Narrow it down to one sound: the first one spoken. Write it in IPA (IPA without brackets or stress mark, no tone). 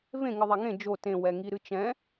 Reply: v